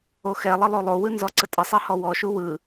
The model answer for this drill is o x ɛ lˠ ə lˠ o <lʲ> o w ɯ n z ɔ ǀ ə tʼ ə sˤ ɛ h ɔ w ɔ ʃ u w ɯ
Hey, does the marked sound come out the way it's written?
no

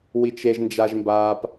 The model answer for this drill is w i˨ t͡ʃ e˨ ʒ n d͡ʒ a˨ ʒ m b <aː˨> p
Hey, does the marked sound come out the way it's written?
yes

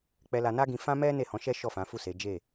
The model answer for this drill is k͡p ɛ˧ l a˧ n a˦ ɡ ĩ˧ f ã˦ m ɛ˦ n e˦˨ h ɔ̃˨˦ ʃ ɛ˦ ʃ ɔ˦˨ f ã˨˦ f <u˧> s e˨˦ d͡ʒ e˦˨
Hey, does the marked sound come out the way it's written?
no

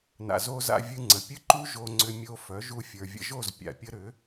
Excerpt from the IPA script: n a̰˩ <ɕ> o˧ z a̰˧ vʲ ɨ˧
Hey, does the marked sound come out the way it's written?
no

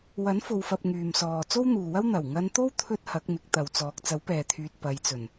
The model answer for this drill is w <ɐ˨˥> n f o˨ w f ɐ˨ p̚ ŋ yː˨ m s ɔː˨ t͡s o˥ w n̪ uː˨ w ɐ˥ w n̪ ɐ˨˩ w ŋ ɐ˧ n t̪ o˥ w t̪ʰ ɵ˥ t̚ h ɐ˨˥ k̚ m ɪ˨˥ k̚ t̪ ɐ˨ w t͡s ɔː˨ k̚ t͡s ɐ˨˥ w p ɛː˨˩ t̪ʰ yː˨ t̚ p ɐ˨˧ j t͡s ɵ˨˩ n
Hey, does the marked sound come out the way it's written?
yes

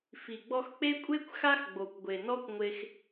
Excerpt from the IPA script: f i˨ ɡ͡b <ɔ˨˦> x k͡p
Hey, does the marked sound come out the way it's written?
no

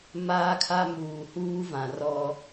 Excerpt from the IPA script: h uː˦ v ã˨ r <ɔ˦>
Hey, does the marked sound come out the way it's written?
yes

